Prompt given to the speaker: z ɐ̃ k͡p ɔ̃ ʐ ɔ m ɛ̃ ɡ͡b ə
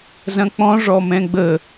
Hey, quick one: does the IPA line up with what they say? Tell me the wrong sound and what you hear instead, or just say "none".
none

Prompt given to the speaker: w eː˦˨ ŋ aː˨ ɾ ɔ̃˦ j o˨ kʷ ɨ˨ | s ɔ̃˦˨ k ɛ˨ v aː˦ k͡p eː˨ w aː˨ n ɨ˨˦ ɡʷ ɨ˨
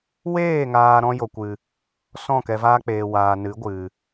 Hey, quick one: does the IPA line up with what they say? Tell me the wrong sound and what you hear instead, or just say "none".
none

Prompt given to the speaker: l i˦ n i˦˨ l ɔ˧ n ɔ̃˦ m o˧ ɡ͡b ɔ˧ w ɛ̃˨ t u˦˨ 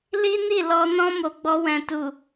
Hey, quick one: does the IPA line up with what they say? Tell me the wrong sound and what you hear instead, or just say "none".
u˦˨ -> u˨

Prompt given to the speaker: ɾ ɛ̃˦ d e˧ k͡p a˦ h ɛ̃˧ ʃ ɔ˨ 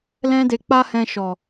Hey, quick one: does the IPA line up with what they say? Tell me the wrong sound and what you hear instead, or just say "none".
ɾ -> l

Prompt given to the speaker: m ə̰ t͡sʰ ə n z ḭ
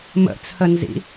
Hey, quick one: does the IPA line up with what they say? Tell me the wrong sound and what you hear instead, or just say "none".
none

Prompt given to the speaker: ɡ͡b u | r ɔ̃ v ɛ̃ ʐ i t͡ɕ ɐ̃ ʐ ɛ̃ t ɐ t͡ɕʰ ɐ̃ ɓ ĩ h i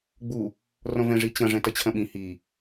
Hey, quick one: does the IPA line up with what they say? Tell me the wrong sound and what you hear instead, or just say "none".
none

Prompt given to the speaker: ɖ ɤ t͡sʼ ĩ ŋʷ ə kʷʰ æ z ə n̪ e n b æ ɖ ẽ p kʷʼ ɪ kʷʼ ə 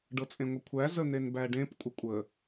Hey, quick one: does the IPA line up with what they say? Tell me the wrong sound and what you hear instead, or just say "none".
ĩ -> ẽ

